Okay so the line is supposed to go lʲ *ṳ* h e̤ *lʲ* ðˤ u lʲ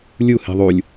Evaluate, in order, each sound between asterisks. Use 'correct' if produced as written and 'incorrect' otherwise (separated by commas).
incorrect, incorrect